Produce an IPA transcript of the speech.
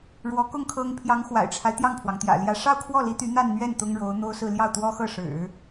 ɻ w ɔ˧˥ k ʊ˥˩ ŋ kʰ ɤ˥ ŋ pʰ j ɑ˧˥ ŋ x w a̰˨˩ ɪ̯ ʈ͡ʂʰ a˦ ɪ̯ t̪ j ɑ˥˩ ŋ pʰ w ɑ˩ ŋ t̪ j ä̰˨˩ l j ä˧˥ ʂ ɑ˥˧ ʊ̯ kʰ w ɔ˥˩ l i˧˥ t̪ y˧˥ n̪ a˥˧ n n̪ ɥ ɛ˥˩ n t̪ ʊ˥ ŋ ɻ o˧˥ ʊ̯ n̪ o˥ ʊ̯ s ɹ̩˥˧ l j ɑ˥˩ ʊ̯ t̪ w ɔ˥ x ɤ˥˩ ʂ ɻ̩˨˩˦

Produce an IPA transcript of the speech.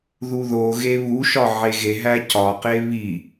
ð u ð o ɣ e β u ʃ ɒ ʕ e ɣ e ɦ æ c ɒ q e β i

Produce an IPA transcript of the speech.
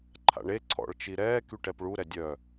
ǃʰ a̰ ɳ e ǀʰ ɔ̰ ɭ t͡ʃ i ɾ ɛː k y ʈ ɛ p ɭ u ɾ ɛ dʲ œ

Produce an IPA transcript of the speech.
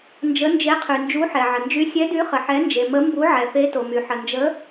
n d͡ʒ ə˨˥ n d͡ʒ e˨˥ qʰ y˩ n d͡ʒ u˨˥ ħ ɛ˩ ʕ ə˩ n d͡ʒ y˨˥ sʲ ɛ˨˥ d y˨˥ χ ə˩ ħ ɛ˨˥ n d͡ʒ e˩ m ə˨˥ m b u˨˥ ʕ ɛ˩ f e˨˥ t o˩ m y˩ ħ ə˩ n d͡ʒ ə˨˥

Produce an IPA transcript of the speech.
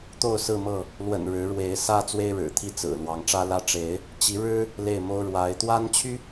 t̪ o˥˨ ʊ̯ s ɹ̩˥˨ m ɤ˥˨ | l w ə̰˨˩ n ɻ ɻ̩˨˦ ɻ w e˨˦ ɪ̯ s ä˦ t͡s w e˦ ɪ̯ ɻ ɻ̩˨˩ t̪ʰ i˥˨ t͡s ɹ̩˨˩ l w ɑ˨˦ ŋ ʈ͡ʂ ä˦ l ä˦ ʈ͡ʂ e˨˦ ɪ̯ | t͡ɕ i˨˦ ɻ ɻ̩˦ | l e˥˨ ɪ̯ m o˦ ʊ̯ ɻ w a˨˦ ɪ̯ t̪ w a˦ n t͡ɕʰ y˦

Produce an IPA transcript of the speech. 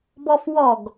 b ɔ f w ɔ ɡ

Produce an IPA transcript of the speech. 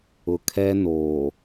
ʊ˨ kʰ ɛ˦ n oː˨

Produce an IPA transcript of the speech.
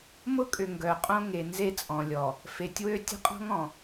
m ʊ˦ kʼ ʏ˨ ŋ ɡ œ˨ qʼ õ˦ ŋ e˨ n z e˦ t͡sʼ ɔ̃˨ lʲ ɔ˨ | f e˨ tʲ w ø˦ tʲ ə̤˦ qʼ ɔ̤˦ ŋ ɔ̃˨

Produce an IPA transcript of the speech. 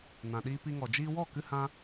n ã˨ ɗ iː˧ p i˧ ŋ ɔ˨ d͡ʒ iː˧ w ɔ˦˨ k ɨ˧ h ã˧

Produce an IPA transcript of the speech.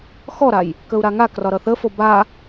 x ɔ ɾ a j | k ə u̯ ɾ a ŋ a k r ɒ ɾ ʌ θ ə f o b a

